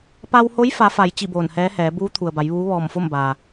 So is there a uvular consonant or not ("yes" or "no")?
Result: no